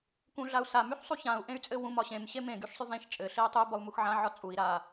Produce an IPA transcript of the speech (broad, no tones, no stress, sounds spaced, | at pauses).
k ũ ɮ a u̯ s a m y ħ sˤ u ç ã u̯ ʔ ẽ y̯ t͡sʼ ɘ w ũ m ɒ ɕ ẽ m ɕ e m ẽ ɡ y ʃ sˤ y v ẽ ʃ t͡ʃʼ ɘ ɬ e y̯ tˤ y b ɒ u̯ m u x ʕ ã ʕ ɒ t͡sʼ u i̯ ɾ a